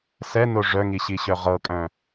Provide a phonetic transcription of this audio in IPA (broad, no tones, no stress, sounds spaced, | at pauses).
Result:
s ɛ n o ʐ œ ŋ i ɕ i ɕ œ ʁ ɤ kʼ œ̃